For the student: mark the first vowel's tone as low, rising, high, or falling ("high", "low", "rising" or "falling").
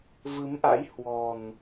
rising